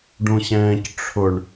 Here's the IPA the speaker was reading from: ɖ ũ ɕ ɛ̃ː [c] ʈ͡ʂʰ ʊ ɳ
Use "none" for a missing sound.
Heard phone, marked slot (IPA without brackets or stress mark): c